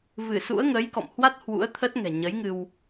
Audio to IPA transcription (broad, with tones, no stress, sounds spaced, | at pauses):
v ɨ˧˩ s ṵ˧˥ ə̯ ŋ ə˨˦ j k ɔ̰˧˨ m h w a˦˥ t̚ h w ṵ˧˥ ə̯ t̪ʰ ə˦˥ t̚ ŋ ɛ̤˨˩ ɲ ə˨˦ j ŋ ɨ˧ w